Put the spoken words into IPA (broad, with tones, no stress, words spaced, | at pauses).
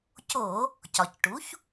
co˧˩˧ | cɒ˩cʈu˩˥ç